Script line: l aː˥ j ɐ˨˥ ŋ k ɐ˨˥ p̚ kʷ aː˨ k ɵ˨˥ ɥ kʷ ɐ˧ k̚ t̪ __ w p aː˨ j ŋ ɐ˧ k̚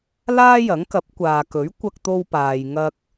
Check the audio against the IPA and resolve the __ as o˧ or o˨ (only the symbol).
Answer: o˧